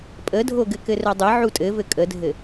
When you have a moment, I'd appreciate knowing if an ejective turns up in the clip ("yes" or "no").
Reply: yes